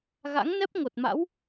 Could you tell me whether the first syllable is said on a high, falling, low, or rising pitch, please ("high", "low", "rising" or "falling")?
rising